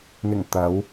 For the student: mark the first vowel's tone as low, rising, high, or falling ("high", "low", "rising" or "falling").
low